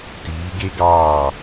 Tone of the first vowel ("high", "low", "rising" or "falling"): rising